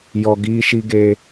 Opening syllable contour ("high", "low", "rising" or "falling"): low